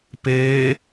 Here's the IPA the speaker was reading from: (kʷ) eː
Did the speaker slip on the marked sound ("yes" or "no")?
yes